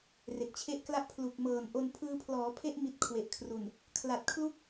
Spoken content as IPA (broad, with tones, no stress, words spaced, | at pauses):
re˨˩k̚t͡ɕʰe˦˥ʔkla˥˩ʔ pʰlu˨˩k̚ mɤː˨˩nʔo˧n pʰɯː˧pʰlɔː˩˦pʰe˦˥ʔ mi˦˥t̚kʰwe˨˩ʔkʰru˨˩n | kʰla˨˩t̚kʰlu˥˩k̚